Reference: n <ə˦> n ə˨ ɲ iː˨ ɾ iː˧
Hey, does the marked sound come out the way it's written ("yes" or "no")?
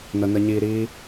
no